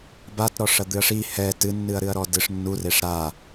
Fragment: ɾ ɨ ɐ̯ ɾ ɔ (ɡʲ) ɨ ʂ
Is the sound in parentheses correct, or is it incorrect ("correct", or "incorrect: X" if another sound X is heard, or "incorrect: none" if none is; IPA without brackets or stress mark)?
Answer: incorrect: d